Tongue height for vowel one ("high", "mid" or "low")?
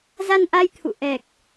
low